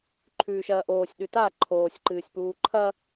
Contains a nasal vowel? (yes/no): no